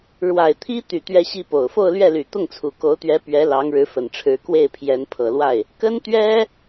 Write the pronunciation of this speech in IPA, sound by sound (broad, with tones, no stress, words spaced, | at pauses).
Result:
ɻwa˨˩ɪ̯t̪ʰi˥t̪y˨˩ t̪ɥɛ˥ɕi˥po˨˩ʊ̯ fo˥˧ʊ̯lɥɛ˥˩ly˨˩ t̪ʊ˥˩ŋt͡sʰu˨˩ko˧˥ʊ̯t̪ɥɛ˧˥ pɥɛ˧˥ lɑ˧˥ŋɻɻ̩˧˥fə˨˩nʈ͡ʂʰɻ̩˧˥ kwe˥˩ɪ̯ pʰjɛ˧˥npʰɤ˨˩lwa˥˩ɪ̯ | kə˥nt̪ɥɛ˥